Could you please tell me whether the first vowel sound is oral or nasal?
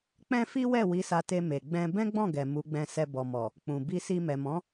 nasal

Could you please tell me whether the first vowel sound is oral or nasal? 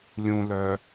nasal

